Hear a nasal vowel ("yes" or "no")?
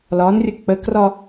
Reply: no